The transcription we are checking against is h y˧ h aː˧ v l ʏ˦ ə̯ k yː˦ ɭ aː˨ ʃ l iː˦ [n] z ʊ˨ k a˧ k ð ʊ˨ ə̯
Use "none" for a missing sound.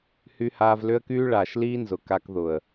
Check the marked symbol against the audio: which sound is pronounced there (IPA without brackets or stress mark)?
n